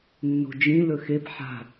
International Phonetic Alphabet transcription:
nːo̤d͡ʒĩ lɵxep ħa̤

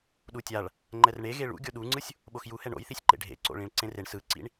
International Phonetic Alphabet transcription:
ɗutʲaɭ | ŋ͡ǃɛrɳe ɣeɭṵ ɡʲoɗuŋ͡ǀɯsʲ | ɓoxjuhɛ ɳo̰jθisʲ ǃḛɖʱḛǀo̰ ɭĩɭǀẽreɳ sɯǀḭɳ

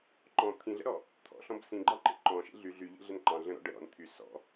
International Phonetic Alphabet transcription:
ǃɔ̃ t̪ʰĩɮə̰ɾɔ | t̪ʰɔ̰ɬɔ̃b sĩɡ͡ǃɑǃḛ ǃɔ̃ʃḛ ɮy ɮyʎḛɮən ǃɑ̃ ɮə̃ɾɔ̰ ɖə ɾɔ̰n t̪ʰy sɔ̰

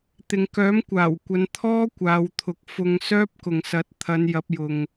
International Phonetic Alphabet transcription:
t̪ɪ˨ŋkœː˨˥mkʷaː˨˩wkʷɐ˨˧n t̪ʰɔː˥ kʷaː˨˧wt̪ʰʊ˨˥k̚ fʊ˧ŋ sœː˥p̚kʊ˨ŋsɐ˨˥t̚ t̪ʰɐ˨˧n jɐ˨˥p̚jʊ˨ŋ

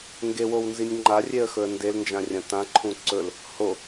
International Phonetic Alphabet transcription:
ŋɡewownzinʲ ŋ͡ǃarʲeə̯xɵə̯ ndelnd͡ʒãrʲɐ̃ tãǃʰũ ǀɵl | ho

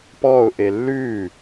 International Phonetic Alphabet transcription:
pɔːʊ̯ʔe lːʉː

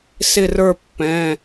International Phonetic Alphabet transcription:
sɪ˦˨rə˞˦˨pːɛ̃˩˧˩

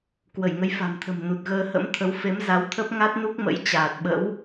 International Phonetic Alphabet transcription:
kwə˧˩jŋə˨˦jfa̤˨˩mt̪ʰə̤˨˩m nu˨˩t̚ɣəː˧hə̰˧˥m t̪ʰə˨˦w fe˨˦mza˨˦wt̪ʰə˦˥p̚ ŋa˦˥t̚nu˦˥k̚mə̰˧˥j t͡ɕaː˨˩t̚ɓə̰˧˥w

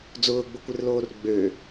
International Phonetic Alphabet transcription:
d͡zʊːɡ͡bʊkʷɪrloːr ɡ͡bø

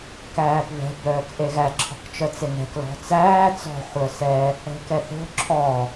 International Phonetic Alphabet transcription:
kæːpβɛ̤ bœːkʔeɣæ ǁʰɔ̤kt͡ʃœt͡seŋɛ̤k lɔ̤t͡sæː t͡sɔ̤ χʷœsɛ | ɛ̤kɛθo̤ ǁʰɔ

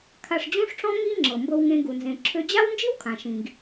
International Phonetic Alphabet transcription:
kʰa˧ʂd͡ʑũ˥ʂʈ͡ʂɔ̃˥ ŋi˥ ŋ͡ǁɤ˩mbɤ˧wŋẽ˧ ɡu˩nzẽ˩ ǁʰø˧d͡ʑa˥w nd͡ʒi˥wkʰã˩ʃĩ˩ɡ

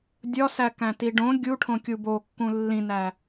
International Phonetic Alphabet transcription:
dʲɒsækæ̃ tiɖõ ɡʲuʈʰõ kʲubokːũ lːĩnæ

